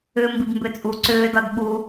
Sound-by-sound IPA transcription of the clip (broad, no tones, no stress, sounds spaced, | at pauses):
ʏː m b i b m b ʏ t͡sʼ u ǀ ʏː d ɒ d ɓ u